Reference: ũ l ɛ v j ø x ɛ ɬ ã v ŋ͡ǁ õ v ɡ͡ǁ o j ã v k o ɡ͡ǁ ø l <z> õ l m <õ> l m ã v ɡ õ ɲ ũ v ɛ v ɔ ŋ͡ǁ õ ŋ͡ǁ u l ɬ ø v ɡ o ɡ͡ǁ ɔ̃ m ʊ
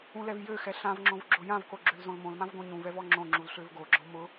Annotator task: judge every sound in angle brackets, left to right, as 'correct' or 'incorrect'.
correct, correct

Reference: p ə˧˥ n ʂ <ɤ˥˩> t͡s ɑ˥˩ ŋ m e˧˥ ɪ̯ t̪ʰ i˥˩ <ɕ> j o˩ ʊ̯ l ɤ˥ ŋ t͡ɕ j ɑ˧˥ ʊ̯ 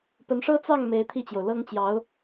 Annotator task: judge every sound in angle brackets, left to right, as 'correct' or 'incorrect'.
incorrect, incorrect

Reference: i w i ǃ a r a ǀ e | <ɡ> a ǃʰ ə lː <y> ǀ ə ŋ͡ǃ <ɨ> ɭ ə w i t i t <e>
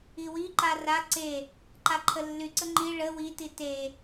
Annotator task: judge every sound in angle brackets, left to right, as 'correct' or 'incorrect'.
incorrect, correct, incorrect, correct

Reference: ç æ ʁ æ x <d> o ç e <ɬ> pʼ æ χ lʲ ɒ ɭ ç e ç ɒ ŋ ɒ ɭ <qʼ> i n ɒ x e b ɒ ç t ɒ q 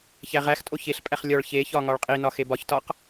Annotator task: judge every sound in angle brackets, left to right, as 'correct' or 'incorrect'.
incorrect, correct, correct

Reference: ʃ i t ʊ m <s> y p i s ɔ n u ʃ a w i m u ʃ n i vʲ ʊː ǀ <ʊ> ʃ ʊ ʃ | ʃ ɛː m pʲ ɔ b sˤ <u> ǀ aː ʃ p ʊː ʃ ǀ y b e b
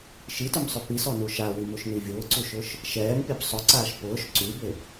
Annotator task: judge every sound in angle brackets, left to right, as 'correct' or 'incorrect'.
incorrect, incorrect, incorrect

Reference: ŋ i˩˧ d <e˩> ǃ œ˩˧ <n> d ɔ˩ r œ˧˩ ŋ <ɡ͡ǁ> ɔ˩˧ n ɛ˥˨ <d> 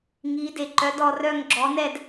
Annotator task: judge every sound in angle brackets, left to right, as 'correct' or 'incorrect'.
correct, incorrect, correct, correct

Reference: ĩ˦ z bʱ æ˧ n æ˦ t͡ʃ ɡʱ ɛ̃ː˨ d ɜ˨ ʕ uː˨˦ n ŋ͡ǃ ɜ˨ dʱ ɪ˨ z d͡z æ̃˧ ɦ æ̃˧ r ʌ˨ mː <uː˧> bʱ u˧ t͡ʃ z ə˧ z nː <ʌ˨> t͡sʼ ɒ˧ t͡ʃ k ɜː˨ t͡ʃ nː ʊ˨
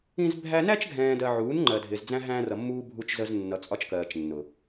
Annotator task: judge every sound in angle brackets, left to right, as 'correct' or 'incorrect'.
correct, correct

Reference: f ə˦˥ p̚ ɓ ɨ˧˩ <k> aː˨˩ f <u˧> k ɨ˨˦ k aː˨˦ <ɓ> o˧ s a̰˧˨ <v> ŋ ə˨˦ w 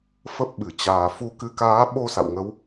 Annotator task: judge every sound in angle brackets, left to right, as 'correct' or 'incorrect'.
incorrect, incorrect, correct, incorrect

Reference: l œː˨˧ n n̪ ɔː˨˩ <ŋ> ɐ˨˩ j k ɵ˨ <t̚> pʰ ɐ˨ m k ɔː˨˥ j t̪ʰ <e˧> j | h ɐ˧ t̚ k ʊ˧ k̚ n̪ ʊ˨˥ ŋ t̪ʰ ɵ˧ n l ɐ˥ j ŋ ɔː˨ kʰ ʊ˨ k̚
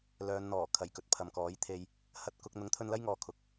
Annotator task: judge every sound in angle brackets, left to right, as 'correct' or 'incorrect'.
incorrect, correct, correct

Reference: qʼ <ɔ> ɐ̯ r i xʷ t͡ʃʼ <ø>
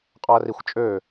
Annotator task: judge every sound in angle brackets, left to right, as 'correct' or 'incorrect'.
correct, correct

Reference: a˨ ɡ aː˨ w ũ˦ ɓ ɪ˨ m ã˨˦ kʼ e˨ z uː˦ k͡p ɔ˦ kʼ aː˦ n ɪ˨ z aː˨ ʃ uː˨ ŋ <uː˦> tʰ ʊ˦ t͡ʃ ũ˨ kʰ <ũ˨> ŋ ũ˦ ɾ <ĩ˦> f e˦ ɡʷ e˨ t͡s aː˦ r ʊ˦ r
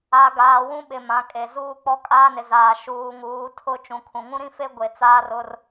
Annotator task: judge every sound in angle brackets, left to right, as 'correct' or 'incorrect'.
incorrect, correct, correct

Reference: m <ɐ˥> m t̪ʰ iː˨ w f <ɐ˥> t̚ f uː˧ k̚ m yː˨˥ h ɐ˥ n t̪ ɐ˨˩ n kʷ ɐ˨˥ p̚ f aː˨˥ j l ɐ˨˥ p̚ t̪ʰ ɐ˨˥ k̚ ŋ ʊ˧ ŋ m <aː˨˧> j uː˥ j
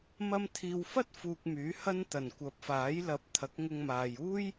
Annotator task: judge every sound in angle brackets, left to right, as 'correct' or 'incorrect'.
incorrect, correct, incorrect

